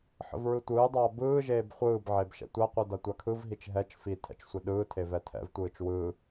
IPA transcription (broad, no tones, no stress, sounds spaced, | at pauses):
ħ ə̰ v ɹ ɯ tʷ ɯː dˤ aː b ɯː ʒ eː b χʷ ɯː b ʕ e b ʃ ɛ̰ tʷ a qʷ ɯ d a tʷ a kʰ ɯ v ɦ i t͡ʃ ɦ ɛ t͡ʃ f i tʰ ɛ̰ t͡ʃ sʷ e ɗ ɯː tʰ e v ɛ tʰ ɛ̰ v tʷ ɯː t͡ʃ w ɯ